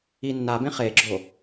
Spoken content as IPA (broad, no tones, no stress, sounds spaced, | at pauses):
i nː a b ẽ χ e ɡ͡ǁ o